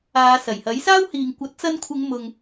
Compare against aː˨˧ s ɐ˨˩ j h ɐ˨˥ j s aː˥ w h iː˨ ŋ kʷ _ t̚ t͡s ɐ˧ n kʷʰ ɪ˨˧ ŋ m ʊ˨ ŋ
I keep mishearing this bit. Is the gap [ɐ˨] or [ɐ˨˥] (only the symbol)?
ɐ˨˥